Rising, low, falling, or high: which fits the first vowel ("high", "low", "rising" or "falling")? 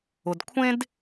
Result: low